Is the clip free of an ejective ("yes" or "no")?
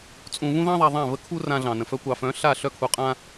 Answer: no